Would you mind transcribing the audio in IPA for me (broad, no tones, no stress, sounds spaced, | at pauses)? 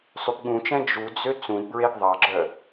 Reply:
sˤ y p ɠ ũ t͡ʃ ɛ̃ d͡ʒ u d͡z ø t͡s ũ d b ɹ e ɡ ðˤ ɑ ɡ͡ǁ œ